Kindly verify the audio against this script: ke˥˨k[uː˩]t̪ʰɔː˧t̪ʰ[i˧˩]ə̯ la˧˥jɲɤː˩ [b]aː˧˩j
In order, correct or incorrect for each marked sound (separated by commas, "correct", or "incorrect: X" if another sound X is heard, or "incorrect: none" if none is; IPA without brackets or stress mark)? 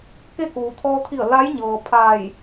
correct, correct, incorrect: pʰ